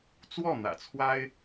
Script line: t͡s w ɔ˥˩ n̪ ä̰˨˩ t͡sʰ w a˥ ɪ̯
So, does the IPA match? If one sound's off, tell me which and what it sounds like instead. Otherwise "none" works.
none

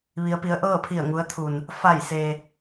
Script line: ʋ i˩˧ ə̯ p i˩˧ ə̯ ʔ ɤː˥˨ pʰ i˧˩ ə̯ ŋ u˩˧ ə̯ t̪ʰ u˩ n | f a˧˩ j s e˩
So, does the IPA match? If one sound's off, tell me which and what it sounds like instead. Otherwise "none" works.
none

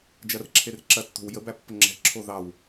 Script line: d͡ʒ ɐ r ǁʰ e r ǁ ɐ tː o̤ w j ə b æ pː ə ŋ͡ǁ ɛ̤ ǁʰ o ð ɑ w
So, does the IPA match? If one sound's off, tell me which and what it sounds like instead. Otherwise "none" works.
none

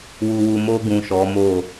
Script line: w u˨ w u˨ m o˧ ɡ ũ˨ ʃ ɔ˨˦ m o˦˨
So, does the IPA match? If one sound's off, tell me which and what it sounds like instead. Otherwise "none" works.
none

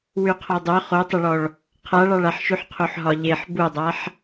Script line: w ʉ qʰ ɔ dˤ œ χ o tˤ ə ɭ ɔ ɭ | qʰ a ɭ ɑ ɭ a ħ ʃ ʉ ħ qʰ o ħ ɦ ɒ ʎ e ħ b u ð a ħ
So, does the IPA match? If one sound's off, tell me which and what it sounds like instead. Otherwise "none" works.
ð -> dˤ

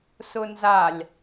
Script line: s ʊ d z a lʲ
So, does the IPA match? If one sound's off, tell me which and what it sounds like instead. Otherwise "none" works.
d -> n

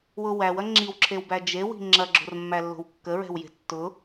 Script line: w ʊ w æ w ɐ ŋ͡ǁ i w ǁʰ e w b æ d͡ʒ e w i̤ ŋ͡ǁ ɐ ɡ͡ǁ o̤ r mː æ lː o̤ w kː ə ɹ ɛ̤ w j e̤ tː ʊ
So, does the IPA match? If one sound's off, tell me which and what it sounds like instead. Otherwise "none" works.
none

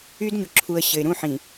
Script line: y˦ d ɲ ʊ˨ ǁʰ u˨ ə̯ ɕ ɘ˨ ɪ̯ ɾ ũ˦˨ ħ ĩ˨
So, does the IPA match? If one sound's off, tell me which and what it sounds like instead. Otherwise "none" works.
none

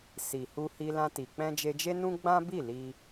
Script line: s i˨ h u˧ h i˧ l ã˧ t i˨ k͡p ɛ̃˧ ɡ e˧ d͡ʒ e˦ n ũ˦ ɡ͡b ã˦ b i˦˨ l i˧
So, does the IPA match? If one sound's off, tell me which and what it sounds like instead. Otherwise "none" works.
ɡ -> d͡ʒ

